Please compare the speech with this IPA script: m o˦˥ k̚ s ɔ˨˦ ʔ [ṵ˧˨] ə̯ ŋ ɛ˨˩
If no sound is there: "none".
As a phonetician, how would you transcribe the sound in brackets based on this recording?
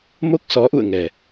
ṵ˧˨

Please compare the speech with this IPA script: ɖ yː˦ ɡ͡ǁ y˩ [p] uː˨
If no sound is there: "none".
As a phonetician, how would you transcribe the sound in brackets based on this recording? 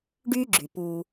p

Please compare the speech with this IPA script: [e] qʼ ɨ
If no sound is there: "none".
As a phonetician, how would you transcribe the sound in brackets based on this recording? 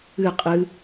ɨ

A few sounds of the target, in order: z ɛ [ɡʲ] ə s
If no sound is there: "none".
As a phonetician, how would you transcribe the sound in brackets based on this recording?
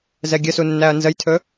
ɡʲ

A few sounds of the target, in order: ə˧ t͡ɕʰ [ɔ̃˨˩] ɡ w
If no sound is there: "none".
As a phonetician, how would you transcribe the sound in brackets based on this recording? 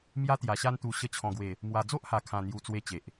ɔ̃˨˩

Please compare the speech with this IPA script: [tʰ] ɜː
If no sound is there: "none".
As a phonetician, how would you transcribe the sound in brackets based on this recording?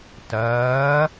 t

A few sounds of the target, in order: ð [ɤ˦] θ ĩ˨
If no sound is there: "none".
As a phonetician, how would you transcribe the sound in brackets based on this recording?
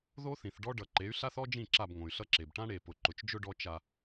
o˦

